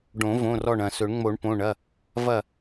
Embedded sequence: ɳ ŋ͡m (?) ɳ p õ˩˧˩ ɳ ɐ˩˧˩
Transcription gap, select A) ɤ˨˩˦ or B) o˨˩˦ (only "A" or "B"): B